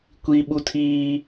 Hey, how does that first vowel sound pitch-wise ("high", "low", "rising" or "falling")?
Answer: high